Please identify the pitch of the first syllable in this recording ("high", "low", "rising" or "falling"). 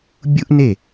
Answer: high